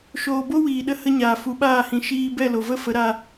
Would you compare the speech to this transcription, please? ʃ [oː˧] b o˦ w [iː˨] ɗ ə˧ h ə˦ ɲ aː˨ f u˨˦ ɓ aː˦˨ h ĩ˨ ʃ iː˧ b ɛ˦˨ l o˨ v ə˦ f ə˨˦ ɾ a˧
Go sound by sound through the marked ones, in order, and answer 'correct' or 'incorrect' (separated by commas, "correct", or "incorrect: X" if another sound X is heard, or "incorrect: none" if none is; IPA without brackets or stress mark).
correct, correct